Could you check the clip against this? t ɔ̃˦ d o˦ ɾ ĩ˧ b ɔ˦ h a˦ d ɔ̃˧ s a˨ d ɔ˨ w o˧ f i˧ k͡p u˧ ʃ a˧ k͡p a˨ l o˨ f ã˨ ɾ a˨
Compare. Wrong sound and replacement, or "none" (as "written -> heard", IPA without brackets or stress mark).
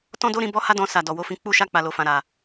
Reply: i˧ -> ĩ˧